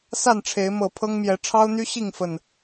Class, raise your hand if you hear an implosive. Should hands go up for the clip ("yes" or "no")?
no